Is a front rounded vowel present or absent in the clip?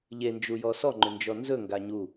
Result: present